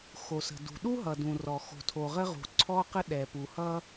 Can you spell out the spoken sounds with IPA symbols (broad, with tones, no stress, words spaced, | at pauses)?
xo˩sə̤˩dṳ˩ɗu˥ ɦʌ˩dũ˩rɔ˩ xo̤˩tʰo˩ʁə˥ʁṳ˩ ǀʰɔ˥qə˥ ɗɛ˩pu˩hʌ˥